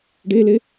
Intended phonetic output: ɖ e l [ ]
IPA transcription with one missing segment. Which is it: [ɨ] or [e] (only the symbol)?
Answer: e